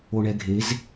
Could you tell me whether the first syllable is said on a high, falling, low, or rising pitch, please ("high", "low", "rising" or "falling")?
low